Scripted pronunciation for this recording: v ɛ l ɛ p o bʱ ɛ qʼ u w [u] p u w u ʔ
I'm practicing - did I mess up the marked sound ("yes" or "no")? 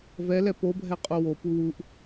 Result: yes